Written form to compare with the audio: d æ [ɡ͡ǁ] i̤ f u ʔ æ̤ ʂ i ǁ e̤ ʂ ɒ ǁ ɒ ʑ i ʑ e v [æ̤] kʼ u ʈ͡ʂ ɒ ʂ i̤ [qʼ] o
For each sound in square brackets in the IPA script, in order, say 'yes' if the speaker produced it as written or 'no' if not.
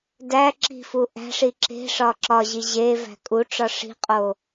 no, yes, yes

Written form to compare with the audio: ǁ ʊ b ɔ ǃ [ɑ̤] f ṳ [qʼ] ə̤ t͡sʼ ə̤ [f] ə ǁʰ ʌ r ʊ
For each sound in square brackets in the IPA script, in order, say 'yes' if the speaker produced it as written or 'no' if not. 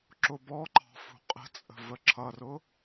yes, yes, no

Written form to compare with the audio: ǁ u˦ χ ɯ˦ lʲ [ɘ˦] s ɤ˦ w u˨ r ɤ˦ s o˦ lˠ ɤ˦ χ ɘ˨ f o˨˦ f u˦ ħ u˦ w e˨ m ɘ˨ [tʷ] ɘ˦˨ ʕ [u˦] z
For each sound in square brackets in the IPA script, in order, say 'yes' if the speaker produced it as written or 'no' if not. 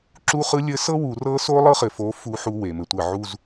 yes, yes, yes

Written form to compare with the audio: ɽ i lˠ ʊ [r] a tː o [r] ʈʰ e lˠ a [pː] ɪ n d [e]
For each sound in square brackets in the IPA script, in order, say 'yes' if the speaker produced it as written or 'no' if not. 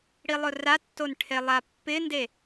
yes, no, yes, yes

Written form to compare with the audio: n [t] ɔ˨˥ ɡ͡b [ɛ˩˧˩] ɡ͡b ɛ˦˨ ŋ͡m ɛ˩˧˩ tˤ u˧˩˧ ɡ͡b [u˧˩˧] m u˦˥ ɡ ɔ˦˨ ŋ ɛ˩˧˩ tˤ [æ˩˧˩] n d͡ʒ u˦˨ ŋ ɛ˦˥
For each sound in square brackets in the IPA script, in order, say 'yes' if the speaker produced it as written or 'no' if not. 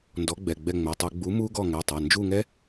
no, yes, no, no

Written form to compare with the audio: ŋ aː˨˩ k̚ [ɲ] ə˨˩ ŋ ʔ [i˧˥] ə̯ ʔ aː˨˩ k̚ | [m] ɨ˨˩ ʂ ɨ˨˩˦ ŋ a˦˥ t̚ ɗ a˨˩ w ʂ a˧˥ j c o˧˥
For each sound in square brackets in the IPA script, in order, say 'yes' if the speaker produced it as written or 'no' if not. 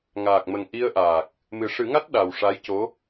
no, no, yes

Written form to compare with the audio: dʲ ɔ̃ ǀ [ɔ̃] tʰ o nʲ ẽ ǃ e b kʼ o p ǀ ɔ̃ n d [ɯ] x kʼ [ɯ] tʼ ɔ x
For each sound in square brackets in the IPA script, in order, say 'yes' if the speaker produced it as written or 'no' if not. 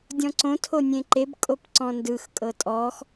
no, yes, no

